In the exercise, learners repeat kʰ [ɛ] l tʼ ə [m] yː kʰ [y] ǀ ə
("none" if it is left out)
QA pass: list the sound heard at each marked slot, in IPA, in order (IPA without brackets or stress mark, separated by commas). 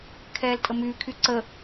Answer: ɛː, m, y